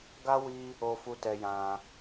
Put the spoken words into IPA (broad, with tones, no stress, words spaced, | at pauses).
ɡa˦wi˦ | o˧fu˧tɛ˧jã˧